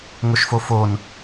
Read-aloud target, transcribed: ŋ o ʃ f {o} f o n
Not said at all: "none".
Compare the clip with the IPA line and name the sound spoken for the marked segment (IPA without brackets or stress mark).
o